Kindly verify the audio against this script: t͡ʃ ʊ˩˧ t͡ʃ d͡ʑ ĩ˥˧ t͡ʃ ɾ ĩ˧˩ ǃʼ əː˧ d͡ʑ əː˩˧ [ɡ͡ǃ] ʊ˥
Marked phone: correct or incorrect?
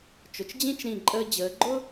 correct